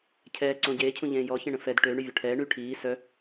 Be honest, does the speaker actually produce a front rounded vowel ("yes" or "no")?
yes